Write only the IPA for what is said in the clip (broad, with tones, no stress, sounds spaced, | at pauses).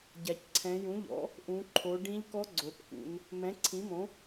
ɟ a˩ c ǀʰ ɛ̃˩˧ j ũ˩˥ ʎ ɔ̰˩˥ | ʔ ũ˩˧ ǃʰ o˩˧ ɖ ĩ˧˥ ʎ k ɔ˧˥ ɡ͡ǀ o˩˧ p k ṵ˩˧ n | m ɛ̃˩˥ ǀʰ ĩ˩˥ m õ˩˥